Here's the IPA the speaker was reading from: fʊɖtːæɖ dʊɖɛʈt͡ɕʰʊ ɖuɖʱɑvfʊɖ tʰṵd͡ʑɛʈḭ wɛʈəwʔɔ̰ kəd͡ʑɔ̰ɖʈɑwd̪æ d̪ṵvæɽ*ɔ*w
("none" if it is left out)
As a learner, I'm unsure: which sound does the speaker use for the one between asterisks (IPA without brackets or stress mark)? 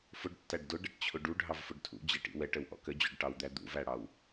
ɑ